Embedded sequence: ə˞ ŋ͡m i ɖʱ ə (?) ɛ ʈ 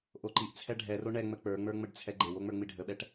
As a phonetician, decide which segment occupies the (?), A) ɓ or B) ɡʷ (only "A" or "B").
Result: A